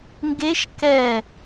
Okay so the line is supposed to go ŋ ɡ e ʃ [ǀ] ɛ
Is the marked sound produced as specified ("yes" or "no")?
no